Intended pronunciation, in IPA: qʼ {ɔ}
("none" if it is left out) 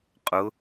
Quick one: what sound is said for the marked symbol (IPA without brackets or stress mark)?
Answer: ʊ